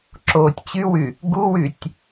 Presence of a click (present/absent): present